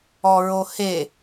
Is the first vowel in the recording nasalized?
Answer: no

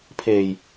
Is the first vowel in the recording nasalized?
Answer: no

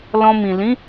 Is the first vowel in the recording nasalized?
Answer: yes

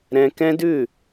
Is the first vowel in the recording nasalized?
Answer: yes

